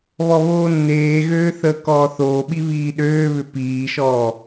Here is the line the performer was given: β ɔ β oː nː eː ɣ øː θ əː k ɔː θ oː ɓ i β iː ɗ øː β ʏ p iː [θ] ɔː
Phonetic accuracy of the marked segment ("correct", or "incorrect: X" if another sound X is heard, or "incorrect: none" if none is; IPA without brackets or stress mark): incorrect: ʃ